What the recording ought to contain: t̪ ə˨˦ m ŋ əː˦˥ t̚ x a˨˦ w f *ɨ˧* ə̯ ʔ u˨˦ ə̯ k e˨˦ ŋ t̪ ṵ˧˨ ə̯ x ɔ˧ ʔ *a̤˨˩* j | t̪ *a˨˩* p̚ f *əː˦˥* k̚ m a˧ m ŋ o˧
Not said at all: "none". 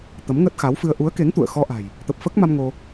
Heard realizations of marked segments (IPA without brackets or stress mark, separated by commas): ɨ˧, a̤˨˩, ə˨˩, əː˦˥